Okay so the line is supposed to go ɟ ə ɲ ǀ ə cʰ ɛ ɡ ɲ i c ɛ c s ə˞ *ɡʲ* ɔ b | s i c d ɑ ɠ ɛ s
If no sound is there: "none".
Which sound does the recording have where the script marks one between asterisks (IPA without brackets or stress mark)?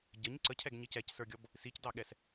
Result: ɡʲ